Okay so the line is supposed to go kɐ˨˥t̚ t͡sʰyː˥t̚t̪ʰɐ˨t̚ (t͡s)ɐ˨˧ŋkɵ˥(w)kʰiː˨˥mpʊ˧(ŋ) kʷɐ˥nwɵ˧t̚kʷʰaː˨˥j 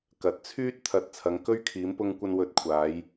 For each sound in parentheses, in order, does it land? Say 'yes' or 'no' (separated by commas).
no, no, yes